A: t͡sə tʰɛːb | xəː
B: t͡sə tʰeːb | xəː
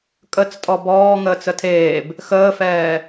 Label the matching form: B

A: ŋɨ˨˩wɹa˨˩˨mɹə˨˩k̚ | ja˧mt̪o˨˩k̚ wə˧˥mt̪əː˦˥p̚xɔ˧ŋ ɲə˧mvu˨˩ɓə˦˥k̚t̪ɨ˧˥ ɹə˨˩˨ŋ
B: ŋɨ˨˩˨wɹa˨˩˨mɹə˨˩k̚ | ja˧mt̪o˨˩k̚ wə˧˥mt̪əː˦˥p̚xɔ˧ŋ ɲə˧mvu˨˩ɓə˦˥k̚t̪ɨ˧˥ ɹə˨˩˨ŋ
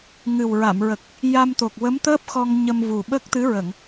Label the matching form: A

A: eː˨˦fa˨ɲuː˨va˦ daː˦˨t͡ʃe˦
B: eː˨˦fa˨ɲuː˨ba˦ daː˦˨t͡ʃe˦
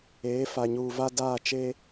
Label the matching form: A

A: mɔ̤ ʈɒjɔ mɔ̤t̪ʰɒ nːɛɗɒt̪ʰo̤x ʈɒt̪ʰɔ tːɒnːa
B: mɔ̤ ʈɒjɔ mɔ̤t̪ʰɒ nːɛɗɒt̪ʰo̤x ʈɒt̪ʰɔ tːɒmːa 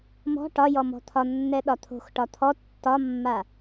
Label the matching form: B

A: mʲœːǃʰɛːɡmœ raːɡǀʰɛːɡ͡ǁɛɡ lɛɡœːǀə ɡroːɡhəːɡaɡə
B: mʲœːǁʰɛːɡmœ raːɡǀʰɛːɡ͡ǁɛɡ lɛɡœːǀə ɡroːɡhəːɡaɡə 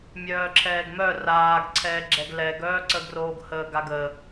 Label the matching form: B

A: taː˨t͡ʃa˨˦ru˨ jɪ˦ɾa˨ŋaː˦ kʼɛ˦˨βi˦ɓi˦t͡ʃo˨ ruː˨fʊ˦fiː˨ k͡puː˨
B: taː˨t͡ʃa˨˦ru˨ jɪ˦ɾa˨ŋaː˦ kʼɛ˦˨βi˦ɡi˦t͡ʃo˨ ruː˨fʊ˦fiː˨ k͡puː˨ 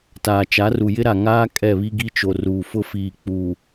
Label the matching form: B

